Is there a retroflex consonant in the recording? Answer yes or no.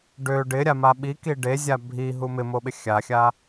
yes